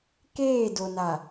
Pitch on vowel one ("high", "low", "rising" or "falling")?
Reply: falling